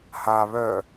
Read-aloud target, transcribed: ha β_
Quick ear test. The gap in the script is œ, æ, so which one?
œ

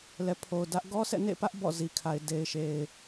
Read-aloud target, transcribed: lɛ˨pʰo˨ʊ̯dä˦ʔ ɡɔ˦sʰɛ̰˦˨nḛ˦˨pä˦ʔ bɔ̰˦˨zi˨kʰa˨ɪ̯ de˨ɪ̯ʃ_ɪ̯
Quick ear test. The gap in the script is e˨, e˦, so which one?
e˨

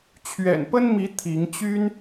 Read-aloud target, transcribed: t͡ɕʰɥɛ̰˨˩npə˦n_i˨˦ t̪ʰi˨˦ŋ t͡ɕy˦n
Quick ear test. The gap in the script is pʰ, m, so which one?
m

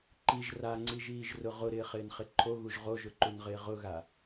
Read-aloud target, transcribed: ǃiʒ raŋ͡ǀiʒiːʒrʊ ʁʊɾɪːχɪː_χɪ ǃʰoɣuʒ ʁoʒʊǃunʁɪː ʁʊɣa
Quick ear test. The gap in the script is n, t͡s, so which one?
n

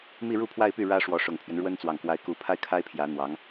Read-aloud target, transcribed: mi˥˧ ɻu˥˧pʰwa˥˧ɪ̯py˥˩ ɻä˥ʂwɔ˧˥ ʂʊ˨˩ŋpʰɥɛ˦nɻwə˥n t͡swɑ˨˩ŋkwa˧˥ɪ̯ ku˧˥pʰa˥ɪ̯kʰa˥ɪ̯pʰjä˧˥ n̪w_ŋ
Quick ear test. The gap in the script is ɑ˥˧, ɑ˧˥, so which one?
ɑ˧˥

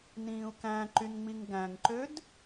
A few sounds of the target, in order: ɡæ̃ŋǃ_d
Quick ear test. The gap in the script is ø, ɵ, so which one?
ø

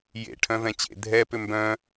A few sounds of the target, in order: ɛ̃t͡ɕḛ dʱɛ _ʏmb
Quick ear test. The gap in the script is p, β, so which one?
p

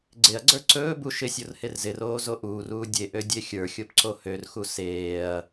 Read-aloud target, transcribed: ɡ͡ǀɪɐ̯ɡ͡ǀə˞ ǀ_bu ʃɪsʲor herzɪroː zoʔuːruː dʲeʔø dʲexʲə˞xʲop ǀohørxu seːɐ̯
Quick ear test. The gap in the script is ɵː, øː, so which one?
ɵː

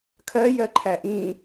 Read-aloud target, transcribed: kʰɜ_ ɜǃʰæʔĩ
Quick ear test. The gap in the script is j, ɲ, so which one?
j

